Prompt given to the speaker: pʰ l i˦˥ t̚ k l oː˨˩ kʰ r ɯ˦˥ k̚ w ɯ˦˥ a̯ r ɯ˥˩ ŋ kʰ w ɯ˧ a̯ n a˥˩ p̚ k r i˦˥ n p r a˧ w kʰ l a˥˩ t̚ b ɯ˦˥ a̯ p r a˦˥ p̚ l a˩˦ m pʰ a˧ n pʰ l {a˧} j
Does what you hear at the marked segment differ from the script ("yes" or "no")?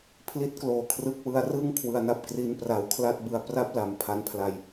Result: no